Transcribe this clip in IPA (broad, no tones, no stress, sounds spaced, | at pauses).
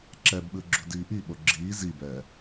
ǁ ɛ b ɓ ɯ ɡ͡ǁ ṳ d iː ʔ i ɓ o ɡ͡ǁ iː z i b ɛː